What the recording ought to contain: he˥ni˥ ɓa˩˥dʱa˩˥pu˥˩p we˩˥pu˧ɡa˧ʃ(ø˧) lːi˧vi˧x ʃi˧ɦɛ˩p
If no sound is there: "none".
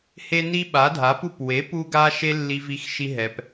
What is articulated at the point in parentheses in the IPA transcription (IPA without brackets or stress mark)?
e˧